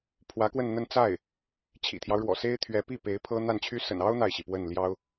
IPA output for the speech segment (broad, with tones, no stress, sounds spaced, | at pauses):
pʰ w ä˧˥ k w ə˥˧ n n̪ ə˥˧ n t͡s a˥˩ ɪ̯ | t͡ɕʰ ḭ˨˩ t̪ʰ j ɑ˦ ʊ̯ ɻ w ɔ̰˨˩ s e˥ ɪ̯ t̪ʰ ɥ ɛ˧˥ p i˥˩ p e˧˥ ɪ̯ pʰ ɤ˥ n̪ a˥˩ n t͡ɕʰ y˥ s ə̰˨˩ n ɑ˥ ʊ̯ n̪ a˥˩ ɪ̯ ɕ i˩ p w ə˥˩ n l j ɑ˥ ʊ̯